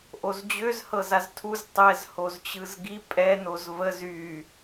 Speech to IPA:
ʔ o z d͡ʑ ø z h ɤ z a z tʰ u z tˤ ɛ z h o z t͡ɕ ɯ z ɡ i pʼ ɛ n o z v ə z y

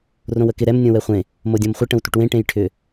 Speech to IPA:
r õ w ə k ɪ ɾ ɛ m nʲ õ w ɛ χʷ ẽ | m o dʲ õ m χʷ ɪ ʈ ə̃ w tʷ ə ʈ w ẽ ʈ ẽ j ʈʰ ʏ

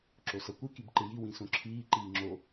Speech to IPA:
ǁ o s ʌ kʷ ɨ k i b ǃ ɨ j i w ĩ s õ ǁʰ iː ǃ iː ŋ͡ǁ o

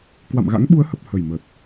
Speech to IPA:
k w a̰˧˨ m ɣ a̰˧˥ ŋ ɓ u˨˦ ə̯ h ə˨˩ p̚ h ə˨˩ j m ə˨˩ t̚

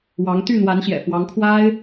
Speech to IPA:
w ɑ˧˥ ŋ t̪ y˥˩ n̪ w a˧˥ n ɕ j ɛ̰˨˩ f w ɑ˧˥ ŋ kʰ w a˥ ɪ̯

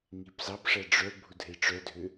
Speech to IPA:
ŋ i p z ɑ p ʂ æ ɖ͡ʐ œ bʱ u dʱ e ʈ͡ʂ œ dʱ ø

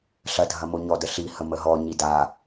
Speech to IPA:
ɬ ɐ dʱ ɐ m o ɲ ɔ d ə ɬ i h ə m ə ɦ ɔ ɲ i d a

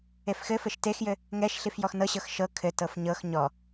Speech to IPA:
e f x ɘ f ɘ ʃ t e x j ɘ | ŋ ɛ ʃ ɬ i f j ɔ x n ɤ ɕ ɤ x ʃ ɤ kʰ ɘ t ɤ f ɲ ɤ x ɲ ɔ

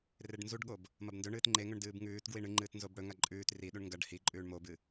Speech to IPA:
r e ɖ n z u ɖ ɠ o b | m ɐ b n d ɵ ɳ ɨː t ŋ͡ǃ e ŋ ɵ ɳ d ɨː b ŋ ʉː t ɡ w i ɳ ɨ ŋ͡ǃ ɨː t n z o b ɽ ɵ ŋ a ǃʼ ʉː t r i ɗ u ɳ ŋ ɡ ɐ ɖ h i ǃʼ ʉː ɳ m o b ɨ

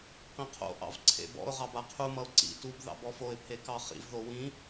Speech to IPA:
q ĩ qʰ o̰ ʔ ɑ̰ v ǀʰ ḛ b ɔ̰ ʊ̯ ʁ ɑ b a qʰ u m ʌ ʊ̯ ǀ ḭ t u b ð ɑ̰ b ɔ f o ɪ̯ pʰ e k ɑ χ ḭ v ð o w ĩ

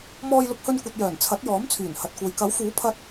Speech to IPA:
m ɔː˧ j l ʊ˧ k̚ h ɵ˧ n kʷ ɐ˨ t̚ j œː˨˩ n t͡sʰ ɐ˨˥ t̚ j ɔː˨˥ m t͡sʰ yː˨˩ n h ɐ˨ t̚ kʷ ɐ˨ j k ɐ˨˥ w f uː˨˥ pʰ ɐ˧ t̚

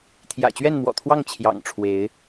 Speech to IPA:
t̪ʰ j ä̰˨˩ t͡ɕ ɥ ɛ˥˨ n m w ɔ̰˨˩ t̪ʰ w ɑ˥˨ ŋ t͡ɕʰ j ɑ̰˨˩ ŋ ʈ͡ʂʰ w e˨˦ ɪ̯

